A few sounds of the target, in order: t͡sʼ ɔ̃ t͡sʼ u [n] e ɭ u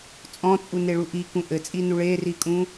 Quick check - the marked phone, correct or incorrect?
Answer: correct